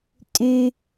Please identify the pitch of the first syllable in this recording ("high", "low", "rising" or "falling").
low